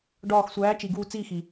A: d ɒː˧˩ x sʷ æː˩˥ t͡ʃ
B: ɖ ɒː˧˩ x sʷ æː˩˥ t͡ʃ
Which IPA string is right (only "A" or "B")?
B